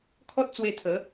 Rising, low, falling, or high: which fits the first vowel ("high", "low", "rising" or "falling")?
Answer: high